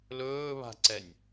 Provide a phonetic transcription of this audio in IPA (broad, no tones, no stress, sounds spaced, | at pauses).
l ɵː β a̤ ǀ ɛ nʲ